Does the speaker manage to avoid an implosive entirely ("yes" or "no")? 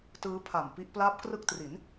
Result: yes